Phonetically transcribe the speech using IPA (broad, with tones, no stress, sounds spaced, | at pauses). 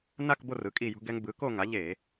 n a˦˨ k b o˦˨ r ɯ˩˥ kʼ i˦˨ j ṳ˦ ɡ ɛ˦ ŋ b ɯ˩˥ k o˦˨ ŋ a˩˥ ʎ e˧˩˧